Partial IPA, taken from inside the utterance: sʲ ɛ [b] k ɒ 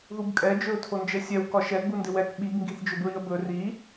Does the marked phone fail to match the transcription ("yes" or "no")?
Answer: yes